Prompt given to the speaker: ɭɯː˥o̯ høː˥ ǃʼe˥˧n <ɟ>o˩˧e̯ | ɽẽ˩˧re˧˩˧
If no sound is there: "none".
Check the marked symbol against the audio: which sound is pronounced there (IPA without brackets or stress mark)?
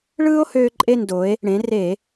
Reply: d